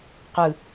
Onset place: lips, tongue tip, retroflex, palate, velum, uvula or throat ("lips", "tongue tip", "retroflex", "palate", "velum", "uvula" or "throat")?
uvula